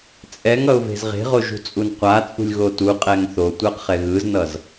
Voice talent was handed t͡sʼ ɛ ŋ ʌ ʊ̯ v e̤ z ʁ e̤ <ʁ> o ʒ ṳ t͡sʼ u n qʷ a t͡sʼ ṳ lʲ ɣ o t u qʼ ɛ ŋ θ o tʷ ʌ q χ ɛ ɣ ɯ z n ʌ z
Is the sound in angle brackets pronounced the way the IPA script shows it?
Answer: yes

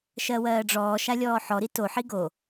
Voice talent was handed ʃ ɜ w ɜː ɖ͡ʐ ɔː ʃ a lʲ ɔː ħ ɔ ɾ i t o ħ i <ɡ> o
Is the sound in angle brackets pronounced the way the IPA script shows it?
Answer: yes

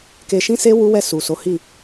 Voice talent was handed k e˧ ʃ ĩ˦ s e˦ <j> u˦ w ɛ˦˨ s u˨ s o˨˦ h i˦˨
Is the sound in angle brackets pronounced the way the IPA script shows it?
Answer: no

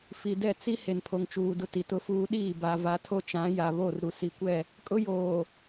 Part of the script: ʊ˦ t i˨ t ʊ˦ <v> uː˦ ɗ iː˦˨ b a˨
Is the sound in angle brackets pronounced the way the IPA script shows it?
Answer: no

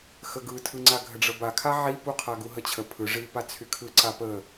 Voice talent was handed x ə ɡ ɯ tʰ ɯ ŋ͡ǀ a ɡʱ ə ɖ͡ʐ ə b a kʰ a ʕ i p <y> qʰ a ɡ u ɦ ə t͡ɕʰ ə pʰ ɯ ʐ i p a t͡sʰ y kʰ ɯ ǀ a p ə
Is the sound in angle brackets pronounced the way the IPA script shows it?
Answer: no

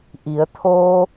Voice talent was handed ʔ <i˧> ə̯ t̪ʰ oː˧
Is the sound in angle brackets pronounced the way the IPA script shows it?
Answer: no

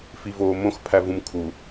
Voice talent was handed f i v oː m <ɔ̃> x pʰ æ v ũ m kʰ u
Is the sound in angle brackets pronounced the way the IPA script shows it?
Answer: no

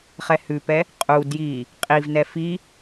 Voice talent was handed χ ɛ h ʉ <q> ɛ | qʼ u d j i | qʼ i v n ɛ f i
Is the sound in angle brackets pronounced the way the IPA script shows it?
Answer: no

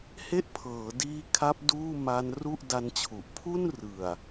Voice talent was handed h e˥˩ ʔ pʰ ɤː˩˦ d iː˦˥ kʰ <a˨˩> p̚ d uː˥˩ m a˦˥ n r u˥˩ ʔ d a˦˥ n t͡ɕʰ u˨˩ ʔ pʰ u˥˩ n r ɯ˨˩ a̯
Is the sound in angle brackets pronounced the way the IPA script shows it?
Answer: no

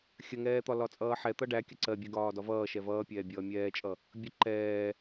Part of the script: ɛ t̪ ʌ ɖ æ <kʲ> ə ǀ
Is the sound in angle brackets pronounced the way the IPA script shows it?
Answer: yes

